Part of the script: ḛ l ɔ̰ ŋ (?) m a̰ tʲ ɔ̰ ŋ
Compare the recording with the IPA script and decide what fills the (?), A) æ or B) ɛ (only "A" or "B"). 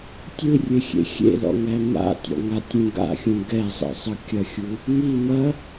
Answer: A